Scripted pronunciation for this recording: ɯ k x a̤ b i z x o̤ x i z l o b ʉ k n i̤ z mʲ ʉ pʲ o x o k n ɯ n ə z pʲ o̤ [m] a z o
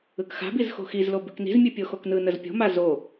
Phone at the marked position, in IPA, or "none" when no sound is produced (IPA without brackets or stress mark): m